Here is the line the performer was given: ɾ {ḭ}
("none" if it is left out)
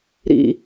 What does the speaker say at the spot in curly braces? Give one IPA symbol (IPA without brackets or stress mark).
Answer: ḭ